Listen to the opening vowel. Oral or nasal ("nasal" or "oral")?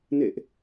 oral